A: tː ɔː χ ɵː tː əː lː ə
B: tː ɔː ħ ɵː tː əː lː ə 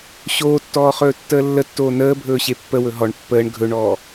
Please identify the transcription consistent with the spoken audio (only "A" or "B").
A